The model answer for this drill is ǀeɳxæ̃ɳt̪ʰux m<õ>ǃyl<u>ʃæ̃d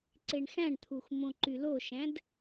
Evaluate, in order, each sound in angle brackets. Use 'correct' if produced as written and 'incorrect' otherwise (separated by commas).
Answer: correct, incorrect